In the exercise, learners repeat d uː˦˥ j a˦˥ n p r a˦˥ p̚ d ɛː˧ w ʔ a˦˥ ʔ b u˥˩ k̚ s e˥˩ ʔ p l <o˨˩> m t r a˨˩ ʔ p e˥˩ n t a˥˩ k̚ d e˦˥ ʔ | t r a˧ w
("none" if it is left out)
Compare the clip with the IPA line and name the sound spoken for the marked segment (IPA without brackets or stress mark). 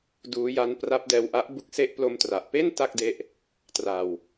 o˧